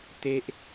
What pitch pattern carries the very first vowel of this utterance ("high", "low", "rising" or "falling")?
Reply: high